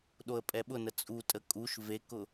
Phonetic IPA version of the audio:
ɗ o ə̯ pʼ ɛ ɓ ʊ n ə t͡sʼ u tʼ ə kʼ u ʃ v e k ʊ

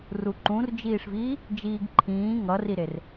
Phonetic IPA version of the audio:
r u ǃ ũ r d͡ʒ iː ʂ v iː | d͡ʒ iː ɡ ǃʰ ĩː ŋ ʌ r i ɾ e r

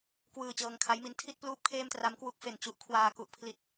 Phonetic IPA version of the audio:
k w ɯː˧ t͡ɕ ɤː˧ ŋ kʰ a˦˥ j m i˧ n tʰ i˥˩ t̚ p l uː˦˥ p̚ kʰ eː˥˩ m t r a˦˥ m k w u˦˥ k̚ f e˨˩ n t͡ɕ u˦˥ ʔ kʰ w aː˧ k u˦˥ ʔ pʰ l i˥˩ t̚

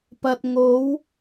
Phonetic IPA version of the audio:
p ɐ˨ t̚ ŋ o˨˧ w

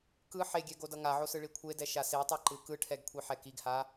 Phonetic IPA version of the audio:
k ɯ ħ e ɡʲ ɛ ɡ o d ʌ ŋ a ʕ o s ɯ ɭ i kʷʰ e d ɛ ʃ a s e tˤ ʌ ǃ ɯ k ɯ ʈʰ ɛ ɡ kʷʰ i ħ ɛ k i ɡ h a

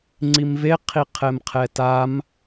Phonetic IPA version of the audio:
ŋ͡ǀ i m v e qʰ i qʰ ɛ m qʰ ɛ t a m

